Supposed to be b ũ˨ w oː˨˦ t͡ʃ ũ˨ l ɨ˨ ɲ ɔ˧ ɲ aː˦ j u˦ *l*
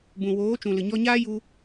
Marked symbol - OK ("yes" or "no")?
no